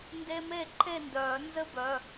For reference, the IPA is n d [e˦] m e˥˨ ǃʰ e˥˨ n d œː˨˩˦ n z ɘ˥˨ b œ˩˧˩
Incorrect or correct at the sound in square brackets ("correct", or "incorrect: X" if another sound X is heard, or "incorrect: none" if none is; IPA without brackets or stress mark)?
correct